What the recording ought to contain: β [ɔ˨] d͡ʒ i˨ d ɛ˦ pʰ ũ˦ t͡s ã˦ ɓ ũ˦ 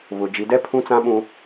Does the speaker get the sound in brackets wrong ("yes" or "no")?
yes